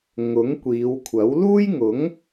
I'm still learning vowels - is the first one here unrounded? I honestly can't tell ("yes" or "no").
no